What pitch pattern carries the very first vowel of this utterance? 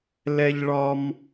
high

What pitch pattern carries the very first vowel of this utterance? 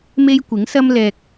high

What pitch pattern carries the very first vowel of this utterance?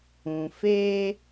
low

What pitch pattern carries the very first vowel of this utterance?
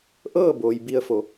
falling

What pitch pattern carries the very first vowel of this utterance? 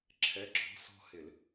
rising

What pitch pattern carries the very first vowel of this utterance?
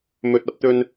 low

